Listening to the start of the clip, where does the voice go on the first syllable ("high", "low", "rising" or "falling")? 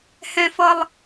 high